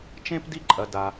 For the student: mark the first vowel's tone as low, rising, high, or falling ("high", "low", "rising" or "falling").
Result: high